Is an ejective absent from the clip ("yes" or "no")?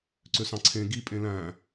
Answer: no